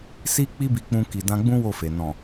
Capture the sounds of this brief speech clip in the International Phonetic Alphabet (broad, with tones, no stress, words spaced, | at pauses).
si˧ k͡pi˦bi˧k͡pũ˧ ki˨dã˧ɡ͡bũ˦ wo˦˨fe˨ nɔ̃˨